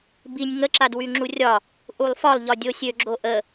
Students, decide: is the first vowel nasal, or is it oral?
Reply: oral